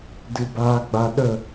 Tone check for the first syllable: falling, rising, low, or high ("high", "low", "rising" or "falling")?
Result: low